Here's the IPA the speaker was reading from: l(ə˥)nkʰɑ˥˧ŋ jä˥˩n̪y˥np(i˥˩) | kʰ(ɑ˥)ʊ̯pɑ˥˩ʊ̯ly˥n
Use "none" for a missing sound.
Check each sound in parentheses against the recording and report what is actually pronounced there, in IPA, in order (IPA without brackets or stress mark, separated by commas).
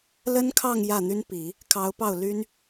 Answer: ə˥, i˨˩˦, ɑ˧˥